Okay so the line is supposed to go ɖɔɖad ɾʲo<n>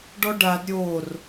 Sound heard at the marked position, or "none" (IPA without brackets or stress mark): r